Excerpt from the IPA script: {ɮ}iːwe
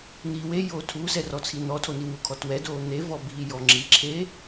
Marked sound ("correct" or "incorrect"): incorrect